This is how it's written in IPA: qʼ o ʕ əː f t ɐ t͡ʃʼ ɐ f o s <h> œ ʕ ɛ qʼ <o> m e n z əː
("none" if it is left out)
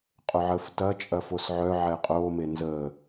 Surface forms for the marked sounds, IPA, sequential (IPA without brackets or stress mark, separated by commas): ʕ, oː